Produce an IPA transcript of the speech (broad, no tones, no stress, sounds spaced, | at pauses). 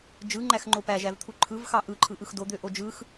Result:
d͡ʒ ɯ ŋ͡ǃ æ x ŋ͡ǃ o p æ ʒ æ v t̪ʰ u ǃʰ ɯ v x ɑ ʔ ɯ ǃʰ ɯ ʔ ɯ x d o d̪ ø ʔ o d͡ʒ ɯ x